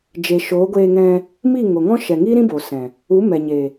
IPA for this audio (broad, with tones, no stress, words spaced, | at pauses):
d͡ʒe˨ʃoː˨˦ɡʷeː˧ ŋɛ̃˧ | mi˦˨ŋo˨ŋɔ̃˦ ʃɛ˨ŋi˦ɾĩ˦ bo˨sɛ̃˨ | u˨˦mɛ˨ɲe˨